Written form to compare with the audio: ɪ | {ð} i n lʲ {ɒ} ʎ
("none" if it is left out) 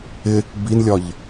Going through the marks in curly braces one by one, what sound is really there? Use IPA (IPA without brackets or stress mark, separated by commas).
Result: b, ɒ